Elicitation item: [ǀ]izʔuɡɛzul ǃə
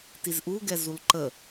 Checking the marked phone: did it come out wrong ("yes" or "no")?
yes